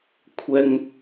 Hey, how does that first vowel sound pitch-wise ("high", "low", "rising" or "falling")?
high